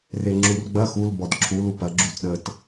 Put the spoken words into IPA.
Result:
r e ŋ͡ǁ u r ɡ͡b ɐ x u l b ɔ d ǁʰ u l u p ɐ ɡ͡ǁ u t ɗ ə t

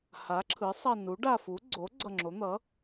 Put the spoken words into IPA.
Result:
h a˩˥ ǁʰ ɯ˩˥ sˤ ʌ˧˩ n u˩˥ ɖ a˧˩ f u˩˥ ɡ͡ǀ o˩˥ ɡ͡ǀ ʌ˧˩ ŋ͡ǁ o˩˥ n̪ ʌ˩˥

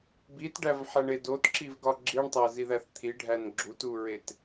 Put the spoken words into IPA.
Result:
b i t ɖ æ v ħ æ ɳ e d o t ǁ i v ɡ ɒ ɡ͡ǁ i ɳ tˤ æ z i ð æ θ t̪ʰ i ɖʱ æ n ɡ͡ǁ u t u ɹ e t

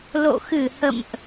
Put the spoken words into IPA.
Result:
l o̰˧˨ x ɨ˧˩ h ə̰˧˨ m ʔ

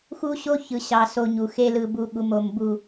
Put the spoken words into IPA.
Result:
x u˦ ɕ o˦ ç ɯ˨ ɕ ɑ˨ s o˨ ɲ u˨ x e˦ l ɯ˨ b u˨˦ ɠ u˨ m o˨ m b u˨

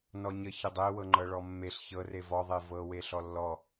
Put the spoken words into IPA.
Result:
n ɔ ɲ ə ç ə dˤ e w ɤ ŋ͡ǃ ɤ ɭ ɔ mː e ɬ ç ɤ r e v ɔ ðˤ e v ɤ w e ɬ ɔ lː ɔ

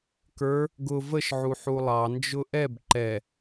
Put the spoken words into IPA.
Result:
k ə˞ | ɡ ʊ v ə ʃ ʕ u ħ u lˠ ɑ n d͡ʒ ʊ ʔ ɛ b ǃ ɛ

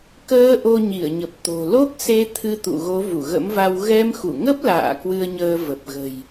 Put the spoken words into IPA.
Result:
k əː˧ ʔ o˧ ɲ i˧˩ ə̯ ɲ ə˨˩ p̚ t̪ o̤˨˩ l o˦˥ k̚ s e˧ t̪ʰ ɨ˧ t̪ ṵ˧˨ ɣ o˨˦ v u˧˩ ɣ ə̰˧˥ m v a˧ w ɣ ɛ˧ m x u˧˩ ŋ ə˦˥ p̚ l a̰ː˧˨ k w ɨ˧ ə̯ ɲ əː˧ v ə˨˩ p̚ ɣ ə̤˨˩ j

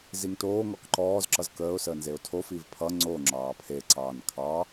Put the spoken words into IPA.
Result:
z i ŋ t oː ŋ ɔ k ǃ ɔː z ǁ ʌ z k əː ʊ̯ s əː n z e ʊ̯ tʰ o f i v pʰ ʌ ŋ͡ǀ o ŋ͡ǁ ɑː pʰ e ǀ ɑː n kʰ ɑ

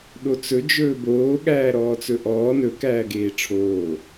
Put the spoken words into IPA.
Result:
ɗ o t͡s ɵ d͡ʒ ɵː b oː ɠ æː ɾ ɔː t͡s ɵ ʔ ɔː n ɵ k æː ɡ eː ʈ͡ʂʰ oː

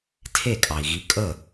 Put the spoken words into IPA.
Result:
tʰ e˥˩ kʼ ɑ˩ i̯ ɣ i˨˥ kʼ ə˥˩

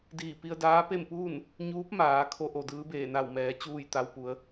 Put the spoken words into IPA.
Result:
d iː˧˩ p i˧ ə̯ d aː˧˥ p e˥˨ m p uː˥˨ n | ɲ uː˧˥ p̚ m aː˩˧ kʰ o˧˥ ʔ o˩ d ɯː˧˥ b eː˧˩ n a˧˩ w m ɛː˩˧ t͡ɕ uː˥˨ j t̪ a˧ w p u˩˧ ə̯

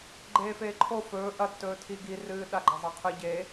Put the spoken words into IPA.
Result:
ɡ͡ǃ eː f eː ǃʰ o f ɵː ʔ ɐ tː ɵː tʰ i ɡ i r ɨː ɗ a ɡ͡ǃ ɐ zˤ a qʰ ɨ ɟ e

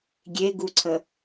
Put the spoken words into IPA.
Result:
ɡʲ e ɡ u ǀʰ ə

